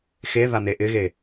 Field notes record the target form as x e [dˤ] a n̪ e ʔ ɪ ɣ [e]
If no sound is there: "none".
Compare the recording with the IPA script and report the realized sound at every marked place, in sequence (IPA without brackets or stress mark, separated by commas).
ð, e